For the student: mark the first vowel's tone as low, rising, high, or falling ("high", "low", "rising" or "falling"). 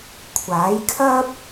rising